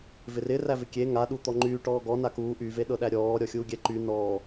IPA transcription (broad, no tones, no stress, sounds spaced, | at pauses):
v ɪ r ɪ r æ v ɪ kʲ e ŋ a ɗ u t̪ ɔ ŋ͡ǃ yː ʈ ɔː ɡ ɔ n a k uː ʔ y v e ɗ ɤ ɗ æ ɾʲ ɔː ɾʲ ɔ xʲ uː ɡʲ ɛ ǃ y n ɔː